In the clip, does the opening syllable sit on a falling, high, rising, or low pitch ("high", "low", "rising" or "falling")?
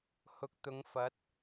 rising